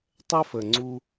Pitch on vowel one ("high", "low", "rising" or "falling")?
high